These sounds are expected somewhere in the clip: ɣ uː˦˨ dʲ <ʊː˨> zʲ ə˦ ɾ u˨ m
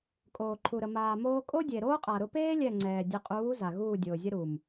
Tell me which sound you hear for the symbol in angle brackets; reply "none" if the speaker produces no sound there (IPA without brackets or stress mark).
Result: ʊː˨